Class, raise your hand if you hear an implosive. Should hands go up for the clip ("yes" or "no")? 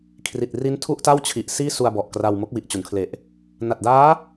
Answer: no